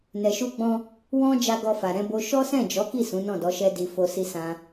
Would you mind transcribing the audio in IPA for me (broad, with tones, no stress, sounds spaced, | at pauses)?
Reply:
n ɛ˨ ʃ u˧ ɡ͡b ɔ̃˧ | w ɔ̃˧ d͡ʒ a˧ ɡ ɔ˧ f a˨ ɾ ɛ̃˧ b o˧ ʃ ɔ˦ s ɛ̃˦˨ d͡ʒ ɔ˨˦ k i˦˨ s ũ˨˦ n ɔ̃˦˨ d ɔ˨˦ ʃ ɛ˦ d i˧ f o˧ s i˧ s ã˧